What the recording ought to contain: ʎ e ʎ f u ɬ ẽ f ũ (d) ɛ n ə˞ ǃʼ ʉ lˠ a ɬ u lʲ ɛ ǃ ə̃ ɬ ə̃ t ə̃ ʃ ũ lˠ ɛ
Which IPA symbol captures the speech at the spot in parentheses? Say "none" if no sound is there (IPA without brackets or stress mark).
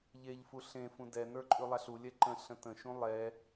d